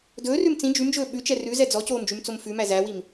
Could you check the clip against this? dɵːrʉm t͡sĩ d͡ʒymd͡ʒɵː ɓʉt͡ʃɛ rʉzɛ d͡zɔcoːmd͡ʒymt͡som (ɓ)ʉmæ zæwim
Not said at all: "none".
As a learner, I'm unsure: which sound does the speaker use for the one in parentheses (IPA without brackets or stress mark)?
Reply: f